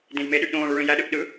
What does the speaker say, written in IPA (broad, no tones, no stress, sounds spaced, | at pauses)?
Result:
d ẽ j m e ɗ y ʔ ɗ õː ɭ u ɭ ĩ j æ ɗ ɯ ʔ ɗ ɯ